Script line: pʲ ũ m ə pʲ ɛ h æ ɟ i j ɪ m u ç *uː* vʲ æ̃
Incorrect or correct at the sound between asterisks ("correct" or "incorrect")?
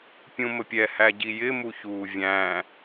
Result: correct